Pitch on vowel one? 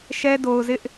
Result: high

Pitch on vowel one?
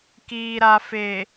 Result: low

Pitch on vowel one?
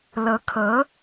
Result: rising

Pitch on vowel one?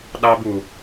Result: high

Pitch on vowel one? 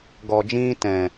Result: low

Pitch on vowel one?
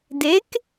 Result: rising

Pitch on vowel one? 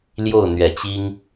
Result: falling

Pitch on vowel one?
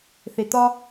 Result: low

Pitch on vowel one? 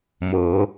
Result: rising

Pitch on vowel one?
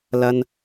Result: high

